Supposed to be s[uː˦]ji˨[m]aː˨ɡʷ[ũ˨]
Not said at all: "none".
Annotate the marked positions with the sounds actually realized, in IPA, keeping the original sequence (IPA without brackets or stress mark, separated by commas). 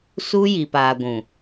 uː˦, p, ũ˨